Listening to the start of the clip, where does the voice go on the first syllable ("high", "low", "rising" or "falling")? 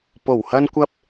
low